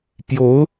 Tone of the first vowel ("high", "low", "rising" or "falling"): rising